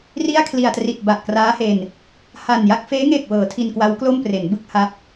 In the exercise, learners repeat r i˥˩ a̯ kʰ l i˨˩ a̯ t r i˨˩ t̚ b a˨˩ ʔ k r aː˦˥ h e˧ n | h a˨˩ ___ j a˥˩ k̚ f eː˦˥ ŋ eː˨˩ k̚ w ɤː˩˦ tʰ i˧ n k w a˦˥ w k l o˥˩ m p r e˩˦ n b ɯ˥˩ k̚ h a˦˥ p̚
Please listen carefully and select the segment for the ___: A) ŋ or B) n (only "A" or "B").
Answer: B